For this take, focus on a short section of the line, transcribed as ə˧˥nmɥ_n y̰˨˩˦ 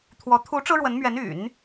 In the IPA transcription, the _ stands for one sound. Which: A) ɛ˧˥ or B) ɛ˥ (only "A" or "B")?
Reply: A